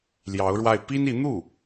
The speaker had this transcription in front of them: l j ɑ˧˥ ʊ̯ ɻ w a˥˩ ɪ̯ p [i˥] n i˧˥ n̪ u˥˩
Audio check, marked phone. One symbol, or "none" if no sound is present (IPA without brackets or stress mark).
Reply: i˥